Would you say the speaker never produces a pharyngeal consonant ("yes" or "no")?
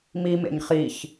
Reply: yes